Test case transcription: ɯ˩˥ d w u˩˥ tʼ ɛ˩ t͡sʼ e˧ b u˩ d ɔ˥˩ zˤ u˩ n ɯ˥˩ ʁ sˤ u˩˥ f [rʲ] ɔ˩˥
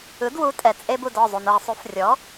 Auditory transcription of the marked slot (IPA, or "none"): rʲ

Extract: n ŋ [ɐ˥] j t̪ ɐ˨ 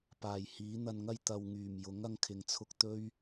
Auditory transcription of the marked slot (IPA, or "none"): ɐ˥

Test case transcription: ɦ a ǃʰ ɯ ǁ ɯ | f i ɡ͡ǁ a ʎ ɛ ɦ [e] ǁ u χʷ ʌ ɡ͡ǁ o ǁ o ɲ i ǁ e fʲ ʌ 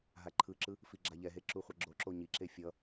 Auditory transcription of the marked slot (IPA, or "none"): e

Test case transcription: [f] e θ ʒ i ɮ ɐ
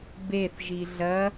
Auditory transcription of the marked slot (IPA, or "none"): b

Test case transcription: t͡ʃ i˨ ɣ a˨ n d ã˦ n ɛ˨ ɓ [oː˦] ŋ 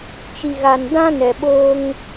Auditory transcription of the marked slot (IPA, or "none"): oː˦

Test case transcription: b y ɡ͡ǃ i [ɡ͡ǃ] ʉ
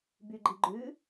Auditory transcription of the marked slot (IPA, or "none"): ɡ͡ǃ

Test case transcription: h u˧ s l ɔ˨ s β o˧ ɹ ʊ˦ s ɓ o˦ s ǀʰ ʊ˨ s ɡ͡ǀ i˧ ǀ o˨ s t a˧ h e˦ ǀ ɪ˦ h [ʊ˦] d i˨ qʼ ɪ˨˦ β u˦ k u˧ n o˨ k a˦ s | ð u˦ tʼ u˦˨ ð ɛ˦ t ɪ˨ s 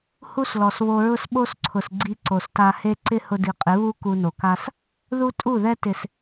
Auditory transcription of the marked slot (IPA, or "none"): ʊ˦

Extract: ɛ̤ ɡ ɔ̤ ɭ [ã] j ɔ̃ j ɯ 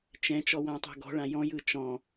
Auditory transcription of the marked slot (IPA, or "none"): ã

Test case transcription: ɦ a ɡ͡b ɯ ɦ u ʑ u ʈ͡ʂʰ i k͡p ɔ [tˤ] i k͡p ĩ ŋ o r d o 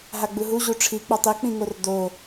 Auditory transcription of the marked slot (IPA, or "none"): tˤ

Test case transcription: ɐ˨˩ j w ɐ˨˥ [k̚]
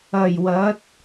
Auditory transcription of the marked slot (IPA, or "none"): t̚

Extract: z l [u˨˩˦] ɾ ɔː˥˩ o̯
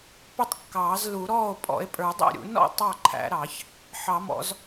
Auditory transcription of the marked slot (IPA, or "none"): u˨˩˦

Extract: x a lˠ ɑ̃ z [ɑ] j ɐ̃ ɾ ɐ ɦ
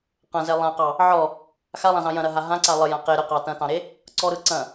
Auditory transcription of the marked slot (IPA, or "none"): ɑ̃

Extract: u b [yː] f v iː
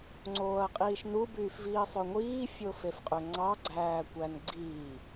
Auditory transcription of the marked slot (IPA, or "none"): yː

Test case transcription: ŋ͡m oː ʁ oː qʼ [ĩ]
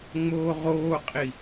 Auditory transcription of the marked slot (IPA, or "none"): i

